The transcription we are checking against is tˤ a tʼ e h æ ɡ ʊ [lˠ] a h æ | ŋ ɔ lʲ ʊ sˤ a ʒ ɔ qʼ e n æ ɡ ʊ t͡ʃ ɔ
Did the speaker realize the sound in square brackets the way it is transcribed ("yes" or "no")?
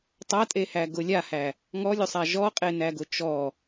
no